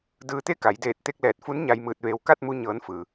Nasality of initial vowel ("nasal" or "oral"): oral